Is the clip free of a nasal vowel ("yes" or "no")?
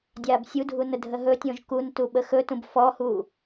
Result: no